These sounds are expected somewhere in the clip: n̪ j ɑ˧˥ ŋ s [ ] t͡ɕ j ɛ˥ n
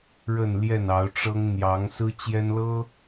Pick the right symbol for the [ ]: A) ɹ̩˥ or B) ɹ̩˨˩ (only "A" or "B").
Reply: A